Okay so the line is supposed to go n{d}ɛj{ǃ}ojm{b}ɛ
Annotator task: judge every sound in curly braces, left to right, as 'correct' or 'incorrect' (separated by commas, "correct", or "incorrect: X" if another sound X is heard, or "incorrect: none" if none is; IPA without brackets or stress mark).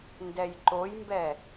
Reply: correct, correct, correct